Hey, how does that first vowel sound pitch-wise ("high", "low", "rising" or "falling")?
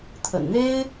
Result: low